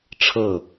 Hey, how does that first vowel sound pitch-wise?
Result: falling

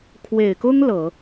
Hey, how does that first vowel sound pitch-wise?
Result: low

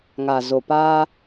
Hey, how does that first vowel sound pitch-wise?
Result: low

